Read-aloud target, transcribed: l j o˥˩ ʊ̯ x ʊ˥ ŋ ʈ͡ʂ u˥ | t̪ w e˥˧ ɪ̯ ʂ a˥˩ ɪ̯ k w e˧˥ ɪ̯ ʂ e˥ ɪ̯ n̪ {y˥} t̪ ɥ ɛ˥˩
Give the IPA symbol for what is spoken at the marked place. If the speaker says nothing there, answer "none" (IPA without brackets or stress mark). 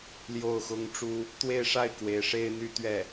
y˥